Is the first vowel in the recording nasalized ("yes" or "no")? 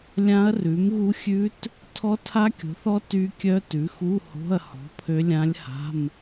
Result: yes